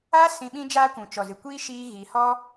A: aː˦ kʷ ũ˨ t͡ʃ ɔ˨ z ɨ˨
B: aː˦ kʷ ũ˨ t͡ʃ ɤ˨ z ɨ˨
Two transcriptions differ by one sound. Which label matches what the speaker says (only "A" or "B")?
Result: A